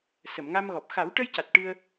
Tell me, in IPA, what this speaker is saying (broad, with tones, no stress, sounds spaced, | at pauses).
s ə˨˩˨ m ŋ a˧ m ɣ ɔ˨˩ p̚ x a˨˩˦ w ʈ ə˧ j c a˨˩ t̚ ʈ ɨ˧ ə̯